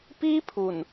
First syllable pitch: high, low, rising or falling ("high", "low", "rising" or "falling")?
high